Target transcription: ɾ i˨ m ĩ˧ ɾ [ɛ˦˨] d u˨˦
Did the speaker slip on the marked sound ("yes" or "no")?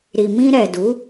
yes